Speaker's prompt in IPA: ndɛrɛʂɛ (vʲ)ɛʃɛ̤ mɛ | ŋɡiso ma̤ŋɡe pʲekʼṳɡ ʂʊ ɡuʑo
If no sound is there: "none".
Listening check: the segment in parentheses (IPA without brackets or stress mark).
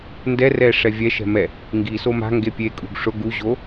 vʲ